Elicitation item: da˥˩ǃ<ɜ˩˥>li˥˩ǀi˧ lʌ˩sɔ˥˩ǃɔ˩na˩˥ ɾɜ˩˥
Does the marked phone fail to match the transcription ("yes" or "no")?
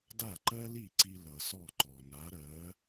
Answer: yes